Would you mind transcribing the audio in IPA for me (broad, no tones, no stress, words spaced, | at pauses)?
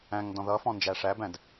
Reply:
æ̃ŋ dɔ̃ðʌfɔ̃ nd͡ʒæʂæbæ̃d